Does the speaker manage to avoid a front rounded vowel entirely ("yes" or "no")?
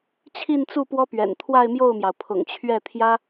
yes